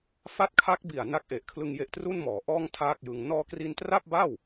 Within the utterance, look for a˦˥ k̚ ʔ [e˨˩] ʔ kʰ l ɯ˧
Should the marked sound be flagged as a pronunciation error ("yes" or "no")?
no